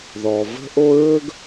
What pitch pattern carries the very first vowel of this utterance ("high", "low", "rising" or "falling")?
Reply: low